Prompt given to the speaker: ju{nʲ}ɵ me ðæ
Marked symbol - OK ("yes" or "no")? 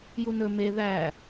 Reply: no